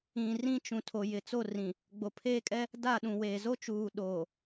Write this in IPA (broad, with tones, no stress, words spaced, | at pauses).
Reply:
ĩ˨ rĩ˦t͡ʃũ˨ tʰo˨jɪ˨t͡so˦˨rĩ˨ | ɡ͡bo˨pʰeː˦kʼɛ˦ | da˦˨ ɗũ˨weː˨ zo˦t͡ʃuː˨ɗoː˨